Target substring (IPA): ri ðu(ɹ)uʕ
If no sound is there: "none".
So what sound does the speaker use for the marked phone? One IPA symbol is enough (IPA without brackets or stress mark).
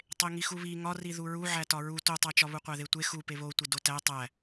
ɹ